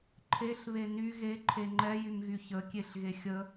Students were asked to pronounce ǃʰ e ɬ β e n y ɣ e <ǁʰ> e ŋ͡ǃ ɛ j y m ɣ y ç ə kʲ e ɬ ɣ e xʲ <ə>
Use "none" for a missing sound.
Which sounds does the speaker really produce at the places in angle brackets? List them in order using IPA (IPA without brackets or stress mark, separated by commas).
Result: ǃʰ, ə